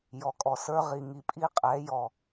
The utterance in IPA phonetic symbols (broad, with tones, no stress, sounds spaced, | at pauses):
j ɔ˨ kʼ ɔ˨ s ə˞˦ ʁ i˨ ŋ i˨ pʼ i˦ qʼ ɛ˨˦ j ɔ˨